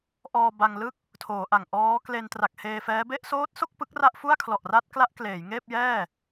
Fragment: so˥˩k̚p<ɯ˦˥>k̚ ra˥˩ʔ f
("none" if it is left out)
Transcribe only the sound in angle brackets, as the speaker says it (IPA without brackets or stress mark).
ɯ˦˥